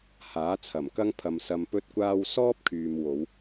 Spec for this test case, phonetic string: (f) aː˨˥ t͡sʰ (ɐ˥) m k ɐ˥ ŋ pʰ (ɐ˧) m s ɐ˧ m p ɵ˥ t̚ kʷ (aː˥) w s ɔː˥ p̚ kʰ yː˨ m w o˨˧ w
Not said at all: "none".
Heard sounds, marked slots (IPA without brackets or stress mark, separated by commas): h, ɐ˨˩, ɐ˨, aː˥